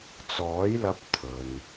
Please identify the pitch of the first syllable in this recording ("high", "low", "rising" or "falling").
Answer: rising